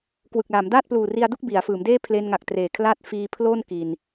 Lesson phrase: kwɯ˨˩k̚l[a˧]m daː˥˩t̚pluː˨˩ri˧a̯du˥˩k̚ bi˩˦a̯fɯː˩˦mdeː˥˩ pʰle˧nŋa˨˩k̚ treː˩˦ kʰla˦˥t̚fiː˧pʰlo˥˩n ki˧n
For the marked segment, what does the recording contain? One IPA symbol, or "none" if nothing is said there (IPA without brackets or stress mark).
a˩˦